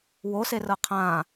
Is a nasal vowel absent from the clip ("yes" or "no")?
no